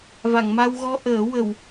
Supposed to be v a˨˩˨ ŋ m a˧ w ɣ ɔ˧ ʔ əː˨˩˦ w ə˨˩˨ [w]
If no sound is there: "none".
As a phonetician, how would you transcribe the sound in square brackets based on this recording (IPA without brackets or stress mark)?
w